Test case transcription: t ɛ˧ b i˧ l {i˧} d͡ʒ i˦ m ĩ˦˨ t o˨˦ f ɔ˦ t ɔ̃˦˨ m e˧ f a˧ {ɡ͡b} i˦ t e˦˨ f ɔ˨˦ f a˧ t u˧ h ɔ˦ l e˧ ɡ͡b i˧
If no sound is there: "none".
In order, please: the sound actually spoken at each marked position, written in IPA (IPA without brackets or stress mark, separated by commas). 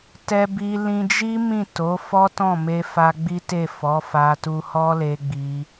ĩ˧, ɡ͡b